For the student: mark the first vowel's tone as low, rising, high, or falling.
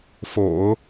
low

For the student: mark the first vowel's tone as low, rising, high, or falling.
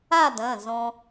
falling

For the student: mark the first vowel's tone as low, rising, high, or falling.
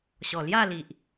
low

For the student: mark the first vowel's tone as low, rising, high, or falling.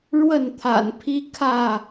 falling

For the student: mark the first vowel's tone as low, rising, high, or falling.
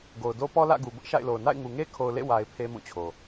low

